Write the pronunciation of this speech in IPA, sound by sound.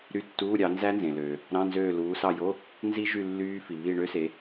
ɾ y˦˨ tː uː˧˥˧ ɾʲ ɑ˨˦ n z æ˦˥ n z ẽ˩ l øː˩ | ɾ ɑ̃˧˥˧ n z øː˦˨ l uː˨˦ s ɑ˦˨ j o˧˥˧ | n z i˦˥ ʒ y˦˨ lː yː˦˥ f i˩ β i˦˨ ɳ ø˦˥ s e˨˦

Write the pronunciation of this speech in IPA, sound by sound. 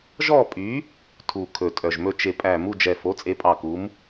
ʒ ɔ˥˨ pʼ y˨˥ | tʰ u˧˩ kʰ ɵ˧˩ tʼ œ˧˩ ʒ m ɵ˥˨ t͡ʃ e˧˩ pʼ æ˧˩ m u˥˨ d͡ʒ ɛ˧˩ f o˨˥ t͡sʼ e˨˥ pʼ ɑ˧˩ k u˨˥ m

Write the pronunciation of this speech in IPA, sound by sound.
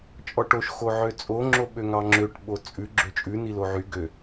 t͡ʃʼ ɔ ʈ o ʃ x o ʕ ø t͡sʼ o ŋ͡ǁ o ɓ ø ŋ ɑ ŋ͡ǁ ø ʈ ɓ o t͡sʼ ʉ ɡ͡ǁ ø t͡ʃʼ ʉ n i l o ʕ y ɡ ø

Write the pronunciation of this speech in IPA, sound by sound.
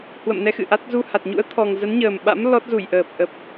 h w ə̰˧˨ m n ɛ˧ x ɨ̰˧˨ ʔ a˦˥ t̚ z u˧ h a˨˩ t̚ ɲ ṵ˧˥ ə̯ t̪ʰ ɔ˨˩ ŋ z ə˨˦ n ɲ əː˨˩ m ɓ a̰˧˥ m l ɔ˦˥ t̚ z u˧˩ j ʔ əː˨˩ p̚ ʔ ə˨˩ p̚

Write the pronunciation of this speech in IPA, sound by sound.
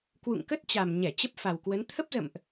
k w ṵ˧˨ ŋ k ə˦˥ t̚ t͡ɕ a˨˩ m ɲ ɛ˧˩ t͡ɕ ə˦˥ p̚ f a˨˩ w k w ə˨˦ n t̪ʰ ə˦˥ p̚ z ə̰˧˨ m ʔ

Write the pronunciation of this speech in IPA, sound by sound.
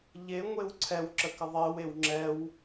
ʎ e ŋʷ e w ǀʰ ɛ w ǁ ə k ɘ ðˤ e w e w ŋ͡ǁ ɛ w

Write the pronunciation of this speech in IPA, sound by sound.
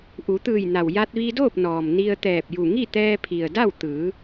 ʔ u˩˧ t̪ ɯː˧˩ j n a˩ w j a˧ t̚ ʋ i˧ d oː˥˨ p̚ n ɔː˩ m n i˧ ə̯ t̪ ɛː˧˩ p̚ j u˧˩ ŋ i˥˨ t̪ ɛː˧ pʰ i˩ ə̯ d a˥˨ w t̪ ɯː˩˧

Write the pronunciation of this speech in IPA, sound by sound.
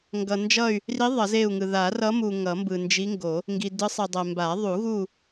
ŋ ɡ ʌ˨ n d͡ʒ ʌ˦˨ y̯ | r i˧˥ ðˤ ʌ˨˩˦ z e˦˨ u̯ ŋ ɯ˨ ð a˨˩˦ r ʌ˧˥ m u˨ ŋ ʌ˨˩˦ m b ɯ˨ n d͡ʒ i˧˥ ŋ ɡ o˨˩˦ | ŋ ɡ i˨ d ɯ˧˥ sˤ i˨ dˤ ɛ˨ m b a˨˩˦ ðˤ u˨˩˦ ɣ u˦˨

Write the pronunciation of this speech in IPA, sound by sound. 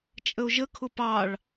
t͡ʃʼ ə o̯ ʒ ə kʰ ʊ p ɑ ɭ

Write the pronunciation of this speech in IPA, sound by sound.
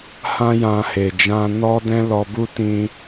h ã˦ j ã˧ h e˨ d͡ʒ ã˧ n ɔ˦ d ɛ̃˦ l ɔ˧ b u˦ t ĩ˦

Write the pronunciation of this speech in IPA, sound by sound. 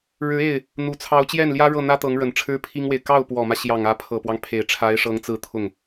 ɻ ɻ̩˧˥ e˥˩ ɪ̯ | n̪ u˨˩ t͡sʰ ɑ˧˥ ʊ̯ t͡ɕ j ɛ˥˩ n l j ä˥ ɻ ɤ˥˩ n̪ ä˥ t̪ ɤ˧˥ ŋ ɻ ə˨˩ n ʈ͡ʂʰ ɻ̩˥ pʰ i˥ ŋ w e˨ ɪ̯ k ɑ˥˩ ʊ̯ p w ɔ˨˩ m ä˦ ɕ j ɑ˨˩ ŋ ä˧˥ pʰ ɤ˨˩ p w ɑ˦ ŋ pʰ e˨˩ ɪ̯ ʈ͡ʂʰ a˧˥ ɪ̯ ʂ ɤ˧˥ ŋ t͡s ɹ̩˥˧ t̪ʰ ʊ˥˩ ŋ

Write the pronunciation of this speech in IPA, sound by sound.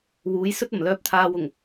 w uː˨˥ j s ɵ˥ t̚ ɐ˨˩ m l œː˧ p̚ t̪ʰ aː˧ w ʊ˨˩ ŋ

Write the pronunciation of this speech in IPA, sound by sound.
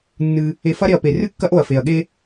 nː ɨ˧ | e˧ f ɐ˦ ɾ e˧ ɐ̯ p e˨ r ɨ˦ kː ɐ˦ ʔ o˨ ɐ̯ f e˨ ɐ̯ ɠ e˦

